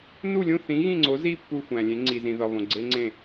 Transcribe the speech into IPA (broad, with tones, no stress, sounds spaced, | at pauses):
n u˥˨ lʲ ũ˥˨ θ ĩ˨˥ ɣ ĩ˥˨ ŋ͡ǀ o˨˥ z i˥˨ pː u˥˨ xʷ æ̃˨ lʲ ẽ˨˥ ŋ͡ǀ i˨ z ĩ˨ ð ɒ˨ β õ˨ ɡ͡ǀ e˦˥ ŋ͡ǀ ẽ˥˨